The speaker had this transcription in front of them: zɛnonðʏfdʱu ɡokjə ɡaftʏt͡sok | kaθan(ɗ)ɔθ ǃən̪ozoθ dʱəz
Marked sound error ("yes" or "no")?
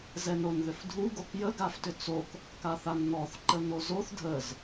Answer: yes